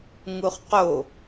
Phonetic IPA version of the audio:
ŋuχqo

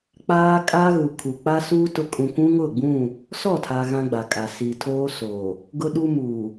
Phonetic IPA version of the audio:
k͡paː˦kʼa˦ɣu˨ kʰu˨k͡pa˦suː˦ tʊ˦ kʼũ˨kʷũ˦ŋʊ˦˨ɡ͡bũ˦˨ | sɔ˦˨tʰa˨ ɣã˦ɡ͡ba˨kʼa˨ si˨ tʰoː˦soː˨ | ɡʊ˦ɗu˦muː˨

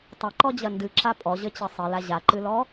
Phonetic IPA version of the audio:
tˤɐǃɔd͡ʑɐ ndɨǁa pʼɔʑɘt͡ɕɘ sˤɘla ʑaǃɨlɔ

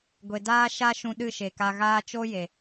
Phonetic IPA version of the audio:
ɡʷe˨daː˦ ʃa˦ʃũ˧ɗɨ˦˨ ʃe˨ka˧ɣaː˦ t͡ʃo˦je˨

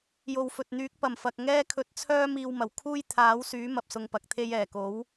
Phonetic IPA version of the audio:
jo˨wfɵ˨t̚n̪yː˨˥k̚ pɐ˨˩mfɐ˨k̚ŋɛː˥kʰɵ˧t̚ t͡sʰœː˥ miː˧wmɐ˨˩wkʰuː˥j t̪ʰaː˨˥wsyː˨˥ mɐ˧p̚sʊ˧ŋpɐ˨k̚t̪ʰe˥j ɛː˨˩ko˨˥w

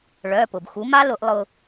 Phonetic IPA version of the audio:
ɭœ˩˧˩pʊ˩b xu˩˥ ma˦˥ lʊ˨˩˦ʔlˠʊ˧

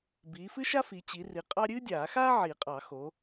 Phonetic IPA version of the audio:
biː˨˦fɨ˥ʃa˥ fi˨˦t͡ɕi˨˦ri˨˦ qʼɑ˥ ɾʲɨː˥dʲaː˨˩˦xaː˥ ʕi˨˩˦qʼɑ˨˩˦ xo˨˦

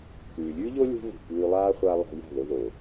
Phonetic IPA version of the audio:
kʉː˨lʲʉː˦ʎo˦ lʲṳ˦ɣṳ˨pʉː˧ lˠaː˦χʷa˧ lˠa̤˧ja̤˦˨ðo˧ðo˨

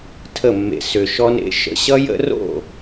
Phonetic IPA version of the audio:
tʰə˦˨mːḛ˧ sʏ˧ʃɔ˦nḛ˦ ʃə̰˦ ɕʌ˦jə̰˦ ro̰˦˨

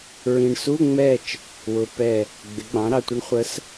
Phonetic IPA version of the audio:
ɹĩ˨ɳsu˧˥˧ŋ͡mɛ˦˨t͡ʃ | wʊ˨ pɛ˦˨ | ɡ͡bɪ˩˥ɡ͡bɑ̃˩˥ɾɑ˨ tʷɪ˧˥ɳχʷə˧˥s

